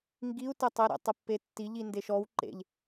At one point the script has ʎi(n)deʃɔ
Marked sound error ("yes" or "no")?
no